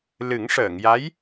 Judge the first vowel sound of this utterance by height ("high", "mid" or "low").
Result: high